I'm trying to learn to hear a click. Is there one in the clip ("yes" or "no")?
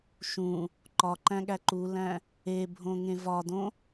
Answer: yes